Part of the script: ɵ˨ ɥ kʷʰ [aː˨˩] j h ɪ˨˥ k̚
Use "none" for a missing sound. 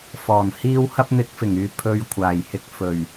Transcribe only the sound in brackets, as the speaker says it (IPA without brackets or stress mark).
aː˨˩